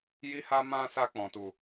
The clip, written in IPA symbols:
j i˧ h a˧ m ã˧ s a˧ k͡p ɔ̃˨ t u˨

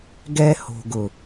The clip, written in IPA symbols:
ɡ ɛ˦ h o̤˨ ɡ ʊ˨

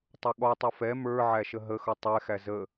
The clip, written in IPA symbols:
tˤ ʊ ɠ ɔ tˤ ʌ f ɛ m ə˞ ʕ æ ʃ ə ɦ ə x ʌ tˤ ɛ x æ z ə

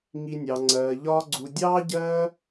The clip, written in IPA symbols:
ŋ i˧ nʲ ɑ˨ ŋ͡ǀ ɜː˨ ʎ ɒː˦ ɡ͡ǀ u˧ dʲ ɑː˦ ɟ ɜː˦

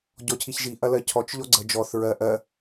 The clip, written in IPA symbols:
ɟ ɔ cʰ i ç ʒ i ʔ ɐ l ɜ cʰ ɔ t͡ʃ ʎ ɔ ɡ͡ǀ ə d͡ʒ ɔ θ ɹ ɜ ʔ ɜ

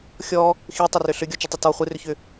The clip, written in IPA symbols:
xʲ ɔ | x i tˤ ʏ r ʏ ɬ ʏ ɡʲ ɔ t͡ʃ ʏ tˤ ʏ t ɔ χʷ ɨ r ʏ ç ʏ

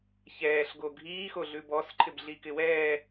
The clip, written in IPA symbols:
ç ɛː ɬ ɡ o ɡʱ iː x o ɮ ʉ b ɔ s ǃʰ ɪ b ɮ i k ɪ w ɛː

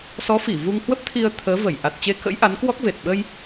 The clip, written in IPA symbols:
s ɔ˨˦ f i˧˩ v u˧ ŋ h w ə˦˥ p̚ t̪ʰ i˧ ə̯ t̪ʰ əː˨˦ v ə˧˩ j ʔ a˨˩ t̚ t͡ɕ e˧ k ə̰˧˥ j ʔ a˨˦ n k w ɔ˦˥ k̚ v e˨˩ t̚ ɓ ə˧ j

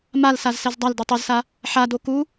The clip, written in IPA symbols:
m a l s a z s ɛ z dˤ a l d u tˤ ɤ z s a | ħ a d o k u

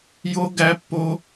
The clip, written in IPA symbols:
j o˥ ɡ æ˥ pː o˥

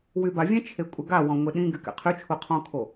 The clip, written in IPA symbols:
w y b a vʲ ɛ̃ t͡ʃʰ e kʷʼ ɛ ɡ a w ɔ̃ ŋʷ e ɗ ĩ ɡ y k ɛ̰ qʰ y t͡ʃʰ u qʰ ɔ̃ kʰ o

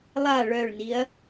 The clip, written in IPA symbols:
lˠ a ɭ œ ɭ n i ɐ̯

